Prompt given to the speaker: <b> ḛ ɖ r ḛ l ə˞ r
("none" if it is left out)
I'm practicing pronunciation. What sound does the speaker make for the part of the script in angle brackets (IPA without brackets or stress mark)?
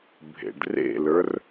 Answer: bʱ